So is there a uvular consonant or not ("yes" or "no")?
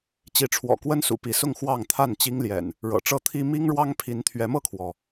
no